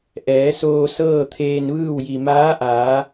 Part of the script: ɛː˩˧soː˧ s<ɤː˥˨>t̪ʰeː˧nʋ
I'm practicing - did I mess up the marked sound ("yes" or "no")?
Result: no